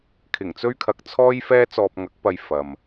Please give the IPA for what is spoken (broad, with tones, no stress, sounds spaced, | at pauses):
kʰ ɪ˨˩ ŋ t͡s ɵ˥ ɥ kʰ ɐ˧ k̚ t͡sʰ ɔː˥ j f ɛː˥ t͡s ɔː˧ p̚ ŋ ɐ˨˥ k̚ p ɐ˧ j f ɐ˨ m